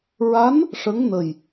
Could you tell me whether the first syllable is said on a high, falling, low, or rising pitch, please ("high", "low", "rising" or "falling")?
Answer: rising